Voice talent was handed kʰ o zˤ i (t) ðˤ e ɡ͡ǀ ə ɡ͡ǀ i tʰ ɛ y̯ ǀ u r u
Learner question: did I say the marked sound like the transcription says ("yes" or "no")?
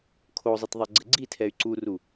yes